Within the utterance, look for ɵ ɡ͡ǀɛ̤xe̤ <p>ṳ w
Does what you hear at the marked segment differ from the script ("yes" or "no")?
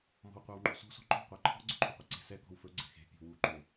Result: yes